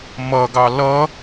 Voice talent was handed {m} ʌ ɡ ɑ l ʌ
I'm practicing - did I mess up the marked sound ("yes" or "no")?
no